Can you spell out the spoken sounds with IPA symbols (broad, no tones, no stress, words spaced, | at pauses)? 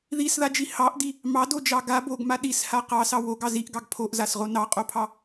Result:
ðisðad͡ʒi hɑʔdi | mɑdod͡ʒɑ ɡa boɡma ɗisha qɑsɑ woɡɑ ziʔɡɑɡ pʰoʔzasʁo nɑqʼopʰɑ